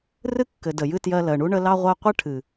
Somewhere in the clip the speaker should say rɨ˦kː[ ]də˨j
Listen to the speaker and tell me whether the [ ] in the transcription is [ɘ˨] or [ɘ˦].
ɘ˨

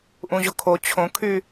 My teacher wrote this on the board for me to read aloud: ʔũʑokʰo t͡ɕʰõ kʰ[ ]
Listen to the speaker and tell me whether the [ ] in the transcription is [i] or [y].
y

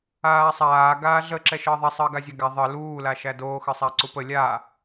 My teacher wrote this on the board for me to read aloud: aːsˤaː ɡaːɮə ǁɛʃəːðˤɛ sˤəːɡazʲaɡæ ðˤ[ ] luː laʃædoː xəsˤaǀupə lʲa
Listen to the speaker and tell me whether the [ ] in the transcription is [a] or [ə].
ə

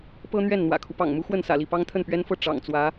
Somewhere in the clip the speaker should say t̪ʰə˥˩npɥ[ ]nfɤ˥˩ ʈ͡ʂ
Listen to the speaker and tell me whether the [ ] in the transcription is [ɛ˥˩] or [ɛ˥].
ɛ˥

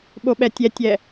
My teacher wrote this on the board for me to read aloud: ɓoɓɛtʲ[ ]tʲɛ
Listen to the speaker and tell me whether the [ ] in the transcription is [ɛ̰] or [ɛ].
ɛ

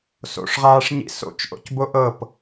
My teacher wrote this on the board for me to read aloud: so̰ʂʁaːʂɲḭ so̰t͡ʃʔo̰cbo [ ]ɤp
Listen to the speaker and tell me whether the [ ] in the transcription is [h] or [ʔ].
ʔ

